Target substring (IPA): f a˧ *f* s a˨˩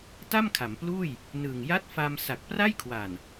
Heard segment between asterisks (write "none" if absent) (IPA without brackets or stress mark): m